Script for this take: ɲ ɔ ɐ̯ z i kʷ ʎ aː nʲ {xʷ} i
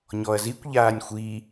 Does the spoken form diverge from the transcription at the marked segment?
no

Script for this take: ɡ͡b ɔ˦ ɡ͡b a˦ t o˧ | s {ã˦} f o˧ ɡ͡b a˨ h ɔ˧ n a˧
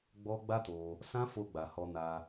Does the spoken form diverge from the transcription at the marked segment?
no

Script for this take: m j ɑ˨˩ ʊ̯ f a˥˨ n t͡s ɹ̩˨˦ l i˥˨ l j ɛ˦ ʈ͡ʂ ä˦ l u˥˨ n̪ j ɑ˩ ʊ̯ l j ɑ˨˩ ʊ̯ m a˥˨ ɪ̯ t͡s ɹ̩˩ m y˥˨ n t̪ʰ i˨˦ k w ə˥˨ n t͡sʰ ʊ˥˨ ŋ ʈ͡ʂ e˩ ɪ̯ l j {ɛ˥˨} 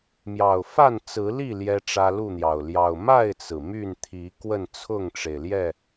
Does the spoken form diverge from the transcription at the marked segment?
no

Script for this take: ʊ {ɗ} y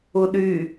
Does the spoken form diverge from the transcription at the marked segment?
no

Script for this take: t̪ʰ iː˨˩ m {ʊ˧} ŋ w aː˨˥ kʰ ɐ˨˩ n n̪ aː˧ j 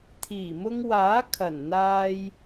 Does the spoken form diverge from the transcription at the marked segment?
no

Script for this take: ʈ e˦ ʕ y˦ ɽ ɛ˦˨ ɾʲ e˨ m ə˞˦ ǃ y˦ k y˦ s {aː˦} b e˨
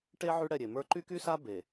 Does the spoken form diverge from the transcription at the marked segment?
yes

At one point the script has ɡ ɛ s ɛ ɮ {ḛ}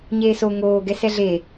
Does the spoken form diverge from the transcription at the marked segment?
yes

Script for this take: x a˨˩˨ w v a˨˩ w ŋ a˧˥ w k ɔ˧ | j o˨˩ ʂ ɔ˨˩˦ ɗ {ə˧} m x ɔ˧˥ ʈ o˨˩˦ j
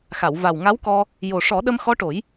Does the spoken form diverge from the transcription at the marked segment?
no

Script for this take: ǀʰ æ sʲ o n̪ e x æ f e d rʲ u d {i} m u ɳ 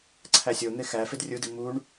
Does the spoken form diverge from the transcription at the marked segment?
no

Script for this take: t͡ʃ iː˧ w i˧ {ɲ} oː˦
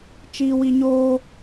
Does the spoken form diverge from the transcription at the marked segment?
no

